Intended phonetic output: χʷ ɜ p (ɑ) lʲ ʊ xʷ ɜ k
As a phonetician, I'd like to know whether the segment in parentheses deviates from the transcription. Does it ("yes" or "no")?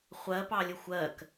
no